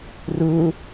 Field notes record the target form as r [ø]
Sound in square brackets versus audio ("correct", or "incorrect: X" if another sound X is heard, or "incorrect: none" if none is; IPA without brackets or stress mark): incorrect: u